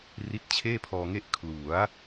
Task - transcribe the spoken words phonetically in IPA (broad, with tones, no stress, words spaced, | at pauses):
ri˦˥t̚t͡ɕʰeː˥˩pʰɔː˧ŋe˥˩ʔ kʰlu˩˦a̯